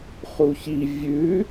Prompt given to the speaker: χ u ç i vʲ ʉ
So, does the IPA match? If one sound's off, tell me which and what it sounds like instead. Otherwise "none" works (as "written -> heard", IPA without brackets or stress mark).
none